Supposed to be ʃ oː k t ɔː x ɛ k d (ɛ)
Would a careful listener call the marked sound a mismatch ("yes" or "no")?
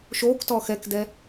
no